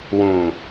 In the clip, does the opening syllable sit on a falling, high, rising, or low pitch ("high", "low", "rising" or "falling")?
low